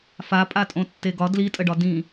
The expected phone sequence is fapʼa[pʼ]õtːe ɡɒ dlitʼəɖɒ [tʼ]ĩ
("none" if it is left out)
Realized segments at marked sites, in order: tʼ, d

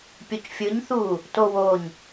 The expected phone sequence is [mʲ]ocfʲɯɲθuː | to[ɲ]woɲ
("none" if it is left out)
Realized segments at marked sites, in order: pʲ, none

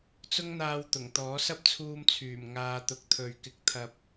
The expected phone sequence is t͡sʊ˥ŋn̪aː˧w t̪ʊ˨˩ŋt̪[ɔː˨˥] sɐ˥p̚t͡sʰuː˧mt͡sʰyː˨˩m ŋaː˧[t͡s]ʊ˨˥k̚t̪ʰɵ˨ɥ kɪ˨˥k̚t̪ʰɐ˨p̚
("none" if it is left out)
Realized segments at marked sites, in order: ɔː˨˥, t̪

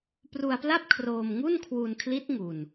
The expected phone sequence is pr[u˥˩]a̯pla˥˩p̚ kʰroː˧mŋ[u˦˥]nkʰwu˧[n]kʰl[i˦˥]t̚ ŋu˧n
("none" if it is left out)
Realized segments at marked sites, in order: u˧, u˥˩, n, i˦˥

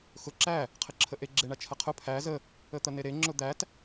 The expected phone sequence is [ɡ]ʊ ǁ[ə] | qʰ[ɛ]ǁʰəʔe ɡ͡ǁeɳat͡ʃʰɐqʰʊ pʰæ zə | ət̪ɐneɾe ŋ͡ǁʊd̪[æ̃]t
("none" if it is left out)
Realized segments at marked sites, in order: x, æ, ɘ, æ

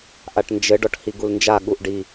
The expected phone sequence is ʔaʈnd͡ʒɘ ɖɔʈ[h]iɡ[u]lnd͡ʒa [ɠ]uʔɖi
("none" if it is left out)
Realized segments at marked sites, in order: h, u, ɠ

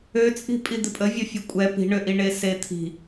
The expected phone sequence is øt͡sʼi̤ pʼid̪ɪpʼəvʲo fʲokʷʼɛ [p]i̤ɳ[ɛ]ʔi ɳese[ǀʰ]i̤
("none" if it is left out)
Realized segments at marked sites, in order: p, ø, t̪ʰ

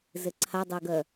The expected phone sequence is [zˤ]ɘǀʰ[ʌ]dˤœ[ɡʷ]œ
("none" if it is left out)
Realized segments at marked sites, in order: z, a, ɡ

